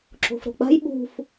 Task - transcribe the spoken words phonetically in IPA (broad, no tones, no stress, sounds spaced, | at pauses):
ǁ o̤ f ɾ o̤ k͡p a̤ j ɓ ṳ f